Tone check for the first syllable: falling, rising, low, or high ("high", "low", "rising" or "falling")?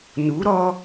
rising